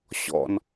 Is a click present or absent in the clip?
absent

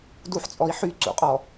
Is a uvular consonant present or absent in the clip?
present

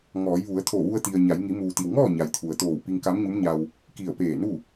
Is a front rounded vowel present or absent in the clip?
absent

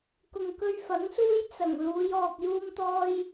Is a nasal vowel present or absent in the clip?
absent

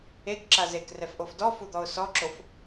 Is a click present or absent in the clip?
present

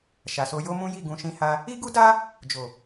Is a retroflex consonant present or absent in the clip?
absent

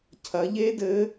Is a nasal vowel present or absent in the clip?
absent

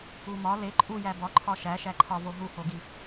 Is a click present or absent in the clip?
present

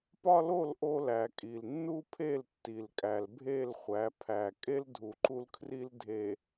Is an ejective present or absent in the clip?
present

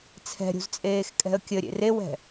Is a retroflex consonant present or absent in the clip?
absent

